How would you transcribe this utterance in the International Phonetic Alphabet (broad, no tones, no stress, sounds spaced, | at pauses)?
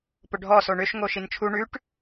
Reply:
p ʊ ɖʱ ɔ s o ɳ ʏ ʃ ŋ o ʃ i n t͡ʃʰ u ɳ ʉ ʈ